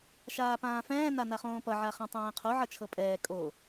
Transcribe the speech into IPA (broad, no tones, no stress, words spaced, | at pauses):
ʃaːpãːfɛ̃ː nanaχõːpʌ ʕaχɛ̃tˤɛ̃ːqʰo ʕʌt͡ʃʰɤpʼɛː kʼo